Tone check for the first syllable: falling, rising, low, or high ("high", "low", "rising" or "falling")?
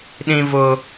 high